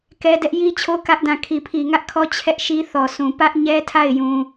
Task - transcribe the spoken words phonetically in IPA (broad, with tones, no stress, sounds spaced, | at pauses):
k ɛ˦ d ɛ˦ ʔ j i˦ t͡ɕʰ o˦ k ä˦ ʔ d ã˦˨ kʰ i˨ pʰ i˨ ŋ ä˦ ʔ kʰ ɔ˦ t͡ɕʰ ɛ˦ ʔ ʃ i˦ θ ɔ˨ s ũ˨ p ä˦ ʔ ɲ ɛ˦ tʰ a˦˨ ɪ̯ j ũ˦